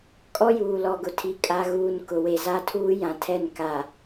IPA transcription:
kʼ ɔ˦ j uː˨ l ɔ˨ ɡ ʊ˨ tʰ i˨ kʼ a˨ ɣ uː˨ n k ʊ˨ w e˨ z a˦ tʰ uː˦ j ã˨ tʰ ɛ˦˨ n k a˨

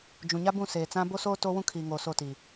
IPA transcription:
d͡ʒ ũ˨ ɲ a˦ b ũ˦˨ s eː˨ t͡s ã˦ b o˦ s oː˦ t o˦ w ũ˦ kʰ iː˨ ŋ oː˨ s o˦˨ t iː˨

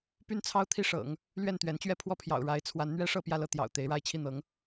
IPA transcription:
p y˥ n t͡sʰ ɑ˥ ʊ̯ t̪ʰ i˥˩ ʂ ɤ̰˨˩˦ ŋ | l ɥ ɛ˥˩ n t̪ ɥ ɛ˧˥ n t͡ɕ ɥ ɛ˥˧ pʰ w ɔ˥˩ pʰ j ɑ̰˨˩ ʊ̯ ɻ a˧˥ ɪ̯ t͡sʰ w a˧˥ n n̪ ɥ ɛ˥ ʂ ɤ˥˧ p j ä˥˧ l ɤ˥˩ t̪ j ɑ̰˨˩ ʊ̯ t̪ e˧˥ ɪ̯ ɻ a˥˧ ɪ̯ t͡ɕʰ i˥˩ n̪ ɤ˧˥ ŋ

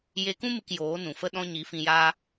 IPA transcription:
j e˧ k ũ˦ m ɨ˧ k j oː˨˦ n ũ˨ f ə˦ ɗ ɔ̃˦ ɲ i˨˦ f ĩ˧ j aː˦

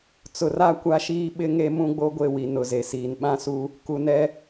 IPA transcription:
t͡s ʊ˨ r a˦ kʷ a˦ ʃ iː˦ ɓ ɪ˦ ŋ e˦ m ũ˦ ɡ͡b o˦ ɡʷ e˦˨ w i˨ n ʊ˨ z e˨ s iː˨ n ɓ ã˦ s u˦ | k u˨ n ɛ˦

